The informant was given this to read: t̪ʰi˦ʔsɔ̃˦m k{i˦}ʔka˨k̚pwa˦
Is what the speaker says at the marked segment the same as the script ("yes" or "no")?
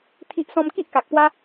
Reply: yes